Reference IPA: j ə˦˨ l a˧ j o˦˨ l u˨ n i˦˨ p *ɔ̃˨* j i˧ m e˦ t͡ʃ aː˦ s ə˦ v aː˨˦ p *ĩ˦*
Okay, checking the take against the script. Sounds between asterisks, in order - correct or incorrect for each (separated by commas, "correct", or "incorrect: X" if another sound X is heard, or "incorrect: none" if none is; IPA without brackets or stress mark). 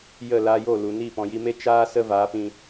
correct, incorrect: ĩ˧